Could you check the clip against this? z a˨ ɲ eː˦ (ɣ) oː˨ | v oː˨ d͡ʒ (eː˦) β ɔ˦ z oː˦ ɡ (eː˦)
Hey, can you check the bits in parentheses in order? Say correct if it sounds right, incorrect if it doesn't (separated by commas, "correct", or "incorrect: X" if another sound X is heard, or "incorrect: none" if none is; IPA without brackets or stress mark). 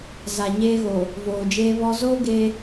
correct, correct, correct